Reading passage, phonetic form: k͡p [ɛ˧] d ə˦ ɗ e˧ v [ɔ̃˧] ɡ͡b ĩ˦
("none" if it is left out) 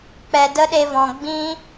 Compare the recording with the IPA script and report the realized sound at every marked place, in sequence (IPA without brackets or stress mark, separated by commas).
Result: ɛ˧, ɔ̃˨